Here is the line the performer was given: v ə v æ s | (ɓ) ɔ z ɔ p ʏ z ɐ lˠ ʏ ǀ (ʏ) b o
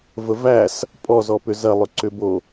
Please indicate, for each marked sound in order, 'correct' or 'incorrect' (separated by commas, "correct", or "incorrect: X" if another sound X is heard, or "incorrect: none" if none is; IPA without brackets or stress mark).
incorrect: pʼ, correct